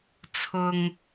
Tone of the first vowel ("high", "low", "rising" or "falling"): low